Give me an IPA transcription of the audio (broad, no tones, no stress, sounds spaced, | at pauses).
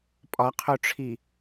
pʼ ɒ qʰ o ʈ͡ʂʰ i